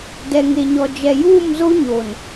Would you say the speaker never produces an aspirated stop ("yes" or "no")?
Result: yes